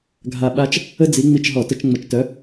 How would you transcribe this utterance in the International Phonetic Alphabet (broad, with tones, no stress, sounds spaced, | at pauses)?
ɡʱ a˧˩ ɓ a˦ t͡ʃ | ə˦ d͡z i˨˦ ŋ͡m i˧˩ t͡ʃ ɦ ɔ˧˩˧ t ə˧˩˧ t͡ʃ ŋ͡m ə˨˦ t͡ʃ t œ˨˦